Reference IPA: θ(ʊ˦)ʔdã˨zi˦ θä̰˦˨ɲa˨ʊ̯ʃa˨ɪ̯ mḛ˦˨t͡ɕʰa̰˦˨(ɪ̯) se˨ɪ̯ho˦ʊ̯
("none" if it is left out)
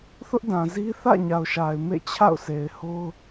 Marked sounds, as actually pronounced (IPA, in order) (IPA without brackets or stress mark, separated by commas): ʊ˦, ʊ̯